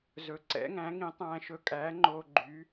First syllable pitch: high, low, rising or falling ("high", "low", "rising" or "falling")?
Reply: rising